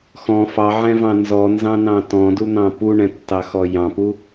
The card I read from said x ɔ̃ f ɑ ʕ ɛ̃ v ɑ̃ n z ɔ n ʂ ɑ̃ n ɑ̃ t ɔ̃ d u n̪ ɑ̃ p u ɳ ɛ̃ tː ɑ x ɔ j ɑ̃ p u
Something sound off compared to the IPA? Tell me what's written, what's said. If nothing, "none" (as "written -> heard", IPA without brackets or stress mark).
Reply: ʂ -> z